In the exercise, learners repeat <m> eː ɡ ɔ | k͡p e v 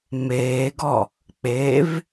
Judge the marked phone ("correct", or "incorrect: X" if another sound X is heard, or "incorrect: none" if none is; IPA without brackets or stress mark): correct